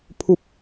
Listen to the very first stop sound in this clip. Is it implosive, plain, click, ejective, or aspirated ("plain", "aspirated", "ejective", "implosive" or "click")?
aspirated